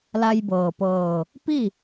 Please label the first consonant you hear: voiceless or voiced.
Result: voiced